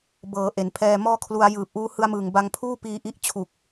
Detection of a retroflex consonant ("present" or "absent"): absent